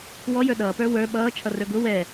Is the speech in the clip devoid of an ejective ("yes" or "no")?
yes